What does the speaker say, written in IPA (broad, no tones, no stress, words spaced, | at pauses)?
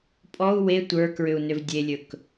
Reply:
pʼɔu̯ we tʷə˞kɹʏu̯ nʏvdʲelʲɵk